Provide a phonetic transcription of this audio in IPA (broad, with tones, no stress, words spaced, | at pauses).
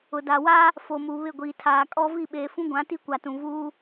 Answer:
ʊ˨ da˨wa˦ | fo˨mu˨ βɪ˦˨ɡʷiː˨ tʰaː˨kʼɔ˦ vi˦˨ɓeː˨fũ˦ɡʷã˨˦ ti˦kʷa˨tũ˨ vuː˦